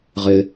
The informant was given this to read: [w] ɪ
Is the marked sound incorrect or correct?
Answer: incorrect